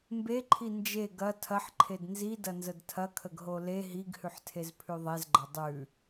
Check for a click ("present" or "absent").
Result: present